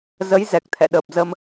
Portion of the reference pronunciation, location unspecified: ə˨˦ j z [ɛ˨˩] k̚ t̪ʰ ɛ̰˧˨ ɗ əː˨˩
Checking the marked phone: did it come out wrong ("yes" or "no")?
no